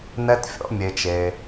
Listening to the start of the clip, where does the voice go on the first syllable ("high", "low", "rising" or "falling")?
high